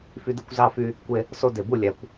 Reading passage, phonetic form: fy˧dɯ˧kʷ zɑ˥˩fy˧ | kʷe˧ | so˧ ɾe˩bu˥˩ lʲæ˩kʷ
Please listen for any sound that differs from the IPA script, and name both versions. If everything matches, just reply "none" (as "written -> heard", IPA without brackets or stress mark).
ɾ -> d